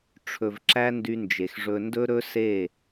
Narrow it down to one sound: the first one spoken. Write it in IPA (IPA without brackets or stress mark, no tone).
ʈ͡ʂʰ